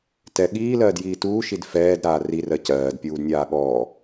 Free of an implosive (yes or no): no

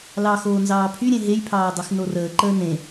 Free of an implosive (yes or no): yes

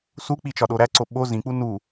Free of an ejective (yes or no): yes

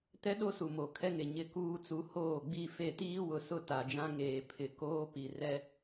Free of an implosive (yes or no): no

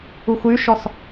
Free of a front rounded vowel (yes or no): no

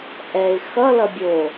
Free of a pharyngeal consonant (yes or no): yes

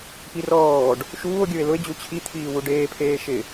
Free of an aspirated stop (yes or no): no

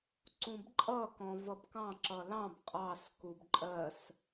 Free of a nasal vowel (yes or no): no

